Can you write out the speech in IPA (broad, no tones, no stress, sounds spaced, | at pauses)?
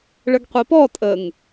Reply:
ɭ ə ɡ qʷ i p ɔ tʼ ə ŋ